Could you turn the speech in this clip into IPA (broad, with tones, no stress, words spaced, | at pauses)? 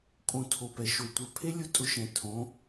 kʼõ˧ tʰo˧pɛ˨ʃo˧ tʷœ˨pʰe˦ lʲʊ˦ tʼʊ˧ʃɛ̃˨ tʰõ˨˦